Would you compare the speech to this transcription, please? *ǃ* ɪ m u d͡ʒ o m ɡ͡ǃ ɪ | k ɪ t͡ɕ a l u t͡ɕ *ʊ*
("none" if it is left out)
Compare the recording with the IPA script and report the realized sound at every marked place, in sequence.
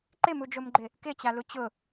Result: ǃ, ʊ

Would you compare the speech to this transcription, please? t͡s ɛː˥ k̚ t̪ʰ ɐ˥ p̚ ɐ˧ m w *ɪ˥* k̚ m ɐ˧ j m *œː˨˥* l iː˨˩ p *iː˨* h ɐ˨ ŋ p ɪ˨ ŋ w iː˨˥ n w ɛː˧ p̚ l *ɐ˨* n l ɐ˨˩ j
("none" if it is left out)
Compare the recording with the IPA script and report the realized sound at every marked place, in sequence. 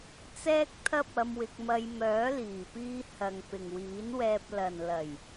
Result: ɪ˧, œː˨˥, iː˧, ɐ˨

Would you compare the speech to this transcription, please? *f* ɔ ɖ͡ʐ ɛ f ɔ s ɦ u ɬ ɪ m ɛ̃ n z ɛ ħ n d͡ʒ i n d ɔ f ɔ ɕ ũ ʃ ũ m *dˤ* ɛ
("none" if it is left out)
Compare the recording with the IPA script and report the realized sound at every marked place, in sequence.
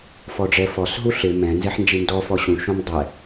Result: f, dˤ

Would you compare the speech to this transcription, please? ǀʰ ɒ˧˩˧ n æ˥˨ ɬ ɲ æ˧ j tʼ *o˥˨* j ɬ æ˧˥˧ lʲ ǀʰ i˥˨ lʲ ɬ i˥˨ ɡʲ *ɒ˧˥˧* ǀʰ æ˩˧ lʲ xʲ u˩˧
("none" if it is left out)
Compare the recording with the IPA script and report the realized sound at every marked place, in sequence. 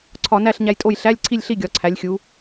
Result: o˥˨, ɒ˩˧

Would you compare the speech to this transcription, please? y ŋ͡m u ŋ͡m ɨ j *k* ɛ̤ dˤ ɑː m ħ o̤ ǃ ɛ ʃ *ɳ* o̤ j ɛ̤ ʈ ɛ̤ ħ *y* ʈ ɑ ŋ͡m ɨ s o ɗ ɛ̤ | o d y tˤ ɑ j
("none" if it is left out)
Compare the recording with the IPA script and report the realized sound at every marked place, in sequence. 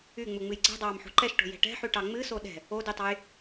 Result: ǀ, ʈ, y

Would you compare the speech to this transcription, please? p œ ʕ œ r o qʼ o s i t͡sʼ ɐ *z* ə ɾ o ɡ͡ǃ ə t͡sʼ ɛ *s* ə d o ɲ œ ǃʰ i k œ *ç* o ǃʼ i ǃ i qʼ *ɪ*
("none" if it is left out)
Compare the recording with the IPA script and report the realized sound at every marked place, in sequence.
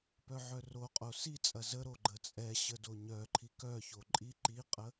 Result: z, ɕ, ç, ə

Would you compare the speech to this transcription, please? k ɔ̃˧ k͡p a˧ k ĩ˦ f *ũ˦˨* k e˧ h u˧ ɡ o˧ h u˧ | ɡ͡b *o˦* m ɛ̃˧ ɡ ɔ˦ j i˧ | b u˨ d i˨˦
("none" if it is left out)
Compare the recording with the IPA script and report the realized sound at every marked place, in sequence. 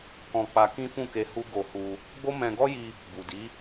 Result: ũ˦˨, o˦

